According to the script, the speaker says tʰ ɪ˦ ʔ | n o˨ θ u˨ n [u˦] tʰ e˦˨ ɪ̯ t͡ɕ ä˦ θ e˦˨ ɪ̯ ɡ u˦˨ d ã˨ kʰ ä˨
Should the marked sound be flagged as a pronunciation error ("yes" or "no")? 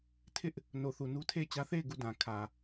no